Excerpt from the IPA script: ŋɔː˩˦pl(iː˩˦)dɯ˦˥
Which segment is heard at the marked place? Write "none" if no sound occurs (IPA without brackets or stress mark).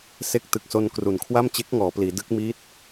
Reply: iː˩˦